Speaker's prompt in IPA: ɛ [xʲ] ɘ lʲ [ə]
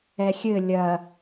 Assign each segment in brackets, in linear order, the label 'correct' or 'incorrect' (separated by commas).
correct, incorrect